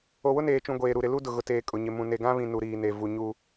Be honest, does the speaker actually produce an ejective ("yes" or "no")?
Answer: yes